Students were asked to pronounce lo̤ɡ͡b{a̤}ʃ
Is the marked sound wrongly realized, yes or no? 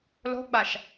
yes